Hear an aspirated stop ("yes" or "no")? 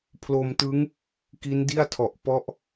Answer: yes